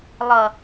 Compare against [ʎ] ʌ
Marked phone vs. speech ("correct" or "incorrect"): incorrect